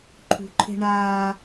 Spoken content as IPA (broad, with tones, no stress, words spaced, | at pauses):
ǃʰṳ˨ǃʰe̤˦ ɳaː˦